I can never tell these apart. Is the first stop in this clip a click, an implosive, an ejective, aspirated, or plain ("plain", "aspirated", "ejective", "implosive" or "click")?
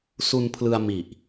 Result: aspirated